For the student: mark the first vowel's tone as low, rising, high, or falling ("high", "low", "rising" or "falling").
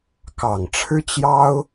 low